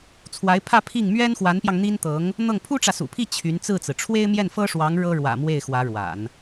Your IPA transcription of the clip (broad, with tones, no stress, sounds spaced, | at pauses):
t͡sʰ w a˧˥ ɪ̯ pʰ ä˥˧ pʰ i˥˩ ŋ m ɥ ɛ˥ n x w a˧˥ n p j ɑ˧ ŋ n̪ i˥ n t̪ ɤ˧˥ ŋ | n̪ ɤ˥˩ ŋ pʰ u˥ ʈ͡ʂ ä˨ s ṵ˨˩ pʰ i˥˩ t͡ɕʰ y˧˥ n t͡s ɹ̩˥˩ t͡s ɹ̩˩ ʈ͡ʂʰ w e˥ ɪ̯ m j ɛ˥˩ n f ɤ˥ ʂ w ɑ˧˥ ŋ ɻ ɤ˥ ɻ w ä̰˨˩ m w e˥˩ ɪ̯ x w ä˧˥ ɻ w a̰˨˩˦ n